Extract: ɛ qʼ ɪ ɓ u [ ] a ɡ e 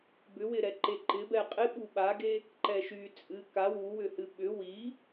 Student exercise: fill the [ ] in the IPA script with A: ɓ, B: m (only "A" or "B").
A